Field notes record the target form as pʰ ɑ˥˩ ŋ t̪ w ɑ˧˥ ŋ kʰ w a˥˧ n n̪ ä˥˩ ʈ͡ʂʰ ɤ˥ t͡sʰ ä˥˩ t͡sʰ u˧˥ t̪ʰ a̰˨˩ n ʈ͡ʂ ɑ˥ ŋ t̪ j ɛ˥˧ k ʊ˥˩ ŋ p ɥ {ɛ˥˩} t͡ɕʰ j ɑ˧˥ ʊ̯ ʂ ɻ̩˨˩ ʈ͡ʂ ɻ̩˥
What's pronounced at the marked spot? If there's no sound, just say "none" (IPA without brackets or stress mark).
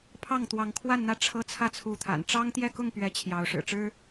ɛ˧˥